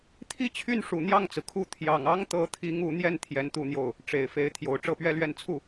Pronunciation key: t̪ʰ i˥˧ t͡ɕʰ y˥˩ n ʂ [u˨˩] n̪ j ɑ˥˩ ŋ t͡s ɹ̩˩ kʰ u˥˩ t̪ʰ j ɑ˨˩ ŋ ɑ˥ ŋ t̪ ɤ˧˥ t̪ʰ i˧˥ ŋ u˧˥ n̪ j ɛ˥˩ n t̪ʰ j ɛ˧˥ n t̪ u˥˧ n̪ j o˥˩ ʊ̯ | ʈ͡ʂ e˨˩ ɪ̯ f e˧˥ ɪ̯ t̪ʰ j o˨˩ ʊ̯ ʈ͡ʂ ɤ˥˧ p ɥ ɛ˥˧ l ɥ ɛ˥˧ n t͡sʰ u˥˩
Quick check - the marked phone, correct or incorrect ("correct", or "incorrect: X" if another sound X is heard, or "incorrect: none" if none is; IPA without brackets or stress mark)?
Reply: correct